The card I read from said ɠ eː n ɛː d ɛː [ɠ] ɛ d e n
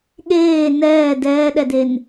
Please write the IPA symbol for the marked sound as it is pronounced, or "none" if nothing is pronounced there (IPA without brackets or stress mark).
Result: ɗ